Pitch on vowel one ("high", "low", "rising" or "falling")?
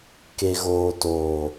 low